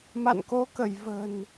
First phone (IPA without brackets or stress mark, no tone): m